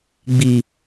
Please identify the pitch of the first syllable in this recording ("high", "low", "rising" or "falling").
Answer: low